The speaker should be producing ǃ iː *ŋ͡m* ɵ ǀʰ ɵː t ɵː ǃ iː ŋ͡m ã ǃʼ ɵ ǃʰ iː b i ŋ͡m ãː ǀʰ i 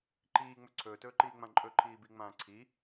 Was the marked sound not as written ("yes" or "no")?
no